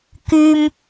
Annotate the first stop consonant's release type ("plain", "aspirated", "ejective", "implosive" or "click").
plain